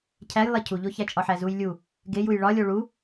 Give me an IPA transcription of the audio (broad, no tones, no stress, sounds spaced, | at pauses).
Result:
cʰ æ j lˠ e cʰ u ʎ o ç æ t͡ʃʼ ɒ ħ æ z u j lʲ u | ɡ e j u j ɭ ɒ lʲ o ɭ u